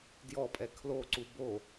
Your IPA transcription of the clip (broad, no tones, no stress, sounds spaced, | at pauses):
d j ɔ pʼ ɛ kʰ l o ǀ u b o